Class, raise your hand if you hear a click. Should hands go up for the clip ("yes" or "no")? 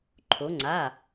yes